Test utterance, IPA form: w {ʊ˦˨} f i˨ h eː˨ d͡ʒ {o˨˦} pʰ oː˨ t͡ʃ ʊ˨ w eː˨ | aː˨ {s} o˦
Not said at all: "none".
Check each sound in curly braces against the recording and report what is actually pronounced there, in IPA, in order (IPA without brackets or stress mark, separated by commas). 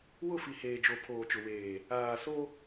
ʊ˦˨, o˨, s